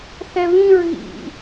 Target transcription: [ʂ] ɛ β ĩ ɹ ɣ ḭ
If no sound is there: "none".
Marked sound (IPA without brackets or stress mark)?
θ